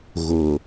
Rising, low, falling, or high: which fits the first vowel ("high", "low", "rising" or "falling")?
low